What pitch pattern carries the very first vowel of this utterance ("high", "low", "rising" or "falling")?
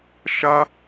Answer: high